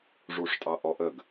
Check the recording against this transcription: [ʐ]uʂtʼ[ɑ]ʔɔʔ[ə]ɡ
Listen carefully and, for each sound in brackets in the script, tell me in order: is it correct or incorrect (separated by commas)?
correct, correct, correct